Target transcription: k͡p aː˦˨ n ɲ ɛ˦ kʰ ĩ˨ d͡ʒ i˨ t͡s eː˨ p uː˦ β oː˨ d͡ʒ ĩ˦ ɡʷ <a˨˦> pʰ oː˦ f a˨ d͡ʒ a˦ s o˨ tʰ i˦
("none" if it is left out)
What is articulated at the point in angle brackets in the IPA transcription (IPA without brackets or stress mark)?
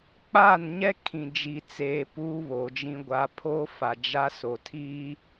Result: a˦